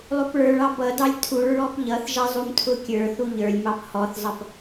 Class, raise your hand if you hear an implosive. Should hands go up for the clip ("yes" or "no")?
no